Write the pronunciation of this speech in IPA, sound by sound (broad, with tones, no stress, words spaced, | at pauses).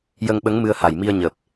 jə˧ŋɓə˧˥ŋ mɨ˧ə̯ha˨˩jmi˧ə̯ ɲəː˨˩p̚